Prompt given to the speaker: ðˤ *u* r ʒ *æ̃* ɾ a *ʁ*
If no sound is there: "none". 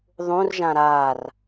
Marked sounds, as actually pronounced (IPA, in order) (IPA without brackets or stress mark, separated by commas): ũ, ã, r